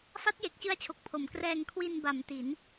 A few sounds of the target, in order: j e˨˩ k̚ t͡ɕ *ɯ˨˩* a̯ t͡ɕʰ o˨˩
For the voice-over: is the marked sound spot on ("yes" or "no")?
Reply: no